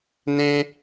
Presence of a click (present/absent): absent